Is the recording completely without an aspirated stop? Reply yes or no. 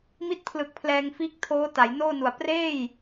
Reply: no